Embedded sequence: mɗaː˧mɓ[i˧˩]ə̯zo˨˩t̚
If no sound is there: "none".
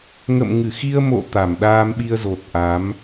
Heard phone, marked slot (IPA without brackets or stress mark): i˧